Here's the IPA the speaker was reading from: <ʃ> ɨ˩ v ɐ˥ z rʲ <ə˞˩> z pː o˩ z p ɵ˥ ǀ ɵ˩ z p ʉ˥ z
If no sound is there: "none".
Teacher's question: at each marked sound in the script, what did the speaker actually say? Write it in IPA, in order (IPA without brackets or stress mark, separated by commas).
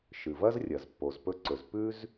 ʃ, ɐ˩